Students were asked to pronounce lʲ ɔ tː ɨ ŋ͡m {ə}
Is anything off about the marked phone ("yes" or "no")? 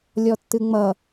yes